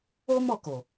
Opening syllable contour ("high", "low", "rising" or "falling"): high